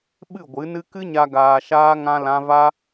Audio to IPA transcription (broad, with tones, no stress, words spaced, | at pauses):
ɓɨ˦˨ ɡʷɨ˨˦nɨ˦ kɨ˦ɲa˧ ɡaː˧ʃaː˦ ŋã˦lã˦ va˦